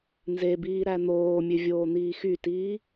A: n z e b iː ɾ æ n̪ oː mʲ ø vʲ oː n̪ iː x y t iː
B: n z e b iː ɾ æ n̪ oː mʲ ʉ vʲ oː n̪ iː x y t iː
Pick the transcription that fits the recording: A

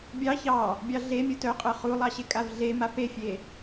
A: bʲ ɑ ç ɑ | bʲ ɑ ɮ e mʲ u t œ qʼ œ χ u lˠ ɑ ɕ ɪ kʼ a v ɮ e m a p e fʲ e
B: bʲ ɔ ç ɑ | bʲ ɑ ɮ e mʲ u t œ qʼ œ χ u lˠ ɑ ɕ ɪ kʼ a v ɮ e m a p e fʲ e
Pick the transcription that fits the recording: A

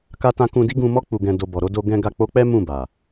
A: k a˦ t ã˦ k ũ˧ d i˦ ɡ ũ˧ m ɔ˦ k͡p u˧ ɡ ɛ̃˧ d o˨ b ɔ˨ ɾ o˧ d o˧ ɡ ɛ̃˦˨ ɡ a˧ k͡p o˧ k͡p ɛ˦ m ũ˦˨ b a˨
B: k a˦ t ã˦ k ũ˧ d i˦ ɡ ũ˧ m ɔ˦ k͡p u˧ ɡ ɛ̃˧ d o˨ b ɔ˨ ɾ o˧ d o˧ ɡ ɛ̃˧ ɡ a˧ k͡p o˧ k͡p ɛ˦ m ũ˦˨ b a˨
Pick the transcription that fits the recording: B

